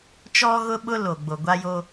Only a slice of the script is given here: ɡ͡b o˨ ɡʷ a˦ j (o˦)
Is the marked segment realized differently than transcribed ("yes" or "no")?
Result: no